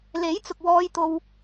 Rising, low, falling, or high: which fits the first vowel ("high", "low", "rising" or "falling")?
rising